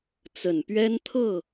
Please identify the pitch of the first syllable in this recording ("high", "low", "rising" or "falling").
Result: low